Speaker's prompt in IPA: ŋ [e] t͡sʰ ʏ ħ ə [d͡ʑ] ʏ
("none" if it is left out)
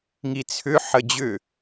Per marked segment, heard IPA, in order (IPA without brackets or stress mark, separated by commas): i, d͡ʑ